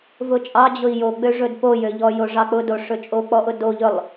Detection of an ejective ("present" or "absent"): present